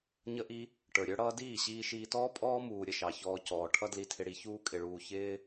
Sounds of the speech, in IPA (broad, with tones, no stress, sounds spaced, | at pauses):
ɲ ə˧ ʔ i˧ | ʈ ə˞˨ ɾʲ ə˞˦ ɽ ʌː˦ d iː˦˨ ɕ iː˧ ʃ iː˧ t ɔː˦ pʼ ɔː˦ m uː˨ ɾʲ ə˦ ʃ ɑ˨ ç ɔː˧ c ɔː˨ ʈʰ ʌ˦ d l i˧ tʰ ɪ˧ ɽ i˧ ç uː˧ kʼ ɪ˨ ɭ uː˨ ç ɪː˦